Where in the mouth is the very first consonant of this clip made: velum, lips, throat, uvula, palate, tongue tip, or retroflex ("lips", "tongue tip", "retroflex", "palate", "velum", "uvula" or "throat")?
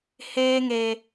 throat